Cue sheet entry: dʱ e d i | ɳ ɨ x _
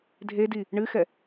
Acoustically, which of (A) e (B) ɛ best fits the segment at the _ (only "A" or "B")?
B